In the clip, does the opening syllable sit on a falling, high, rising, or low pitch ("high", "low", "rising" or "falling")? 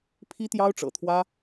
high